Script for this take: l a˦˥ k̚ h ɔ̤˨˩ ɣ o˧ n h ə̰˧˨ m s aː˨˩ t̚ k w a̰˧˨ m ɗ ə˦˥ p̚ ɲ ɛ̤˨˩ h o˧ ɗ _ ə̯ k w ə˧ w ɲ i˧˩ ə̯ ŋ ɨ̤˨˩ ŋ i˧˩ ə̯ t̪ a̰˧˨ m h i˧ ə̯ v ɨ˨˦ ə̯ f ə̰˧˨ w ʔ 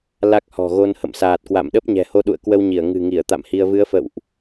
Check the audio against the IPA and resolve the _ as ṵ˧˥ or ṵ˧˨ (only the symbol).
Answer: ṵ˧˨